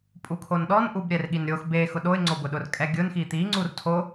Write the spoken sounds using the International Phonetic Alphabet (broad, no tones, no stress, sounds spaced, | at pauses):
pʼ u kʰ o n ɗ ɔ n ʔ u b ɾʲ ɛ r ɠ i n ɾʲ o x b e x ʊ ɗ o ɪ̯ ŋ͡ǀ o b ʊ ɗ ʊ r kʼ ɛ ɡʲ ʊ n x i t̪ i ŋ͡ǀ u r tʰ o